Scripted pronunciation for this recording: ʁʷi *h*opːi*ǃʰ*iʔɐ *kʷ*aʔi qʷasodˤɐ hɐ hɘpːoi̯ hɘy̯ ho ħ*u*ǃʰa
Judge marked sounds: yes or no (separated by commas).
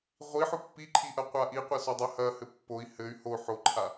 no, yes, no, no